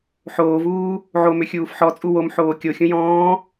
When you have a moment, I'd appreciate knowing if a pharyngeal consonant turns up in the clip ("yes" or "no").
yes